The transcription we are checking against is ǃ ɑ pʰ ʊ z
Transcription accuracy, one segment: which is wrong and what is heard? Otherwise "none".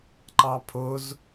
none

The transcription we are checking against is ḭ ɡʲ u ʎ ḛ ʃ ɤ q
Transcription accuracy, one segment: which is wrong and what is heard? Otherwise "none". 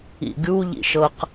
ḛ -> ḭ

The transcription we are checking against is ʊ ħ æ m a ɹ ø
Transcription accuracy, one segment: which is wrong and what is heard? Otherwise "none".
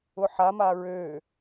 æ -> a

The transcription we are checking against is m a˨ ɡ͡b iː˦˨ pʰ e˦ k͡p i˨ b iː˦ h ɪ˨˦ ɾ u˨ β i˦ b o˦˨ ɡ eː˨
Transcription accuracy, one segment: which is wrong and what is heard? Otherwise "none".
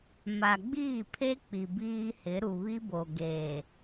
o˦˨ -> o˨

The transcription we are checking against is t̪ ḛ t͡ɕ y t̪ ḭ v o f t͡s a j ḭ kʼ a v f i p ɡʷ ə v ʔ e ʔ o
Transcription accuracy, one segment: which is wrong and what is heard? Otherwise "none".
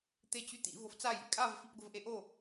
ḛ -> e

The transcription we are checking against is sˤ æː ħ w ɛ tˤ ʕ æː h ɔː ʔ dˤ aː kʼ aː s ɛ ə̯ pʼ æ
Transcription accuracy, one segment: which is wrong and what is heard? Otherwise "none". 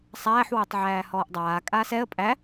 none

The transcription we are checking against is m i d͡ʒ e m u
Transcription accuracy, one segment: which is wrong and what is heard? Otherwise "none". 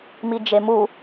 none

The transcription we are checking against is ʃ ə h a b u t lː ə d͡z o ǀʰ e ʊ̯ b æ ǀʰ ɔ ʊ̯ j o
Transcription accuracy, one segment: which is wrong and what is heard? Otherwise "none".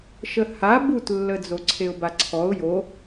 æ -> a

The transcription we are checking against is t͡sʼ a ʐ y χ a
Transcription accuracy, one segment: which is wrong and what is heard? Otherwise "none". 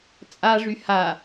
χ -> h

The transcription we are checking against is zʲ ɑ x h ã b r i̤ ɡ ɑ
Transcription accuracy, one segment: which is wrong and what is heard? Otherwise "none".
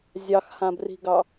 none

